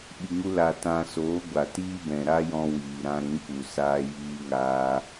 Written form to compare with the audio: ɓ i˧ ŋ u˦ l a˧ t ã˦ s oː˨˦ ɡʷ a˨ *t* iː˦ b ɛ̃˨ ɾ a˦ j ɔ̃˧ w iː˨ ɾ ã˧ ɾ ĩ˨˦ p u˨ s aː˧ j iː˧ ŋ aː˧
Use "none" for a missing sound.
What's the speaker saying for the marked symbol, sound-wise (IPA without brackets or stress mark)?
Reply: t